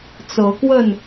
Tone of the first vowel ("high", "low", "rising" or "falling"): rising